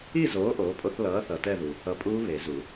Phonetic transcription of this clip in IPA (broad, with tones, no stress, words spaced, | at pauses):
i˥˧zoː˨˥ ʔoː˨˥pʼo˦˥θ lʌː˨˥ θʌ˨tɛ˥˧ðu˨ | ʌ˨˥pʼuː˦˥ βe˨˩˦zu˨˩˦